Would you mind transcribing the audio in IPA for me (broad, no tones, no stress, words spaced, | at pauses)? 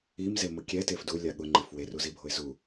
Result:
imzemʊ kʲɛtef dulʲa ɠʊŋ͡ǃɪf weruzibʱoɪ̯ zu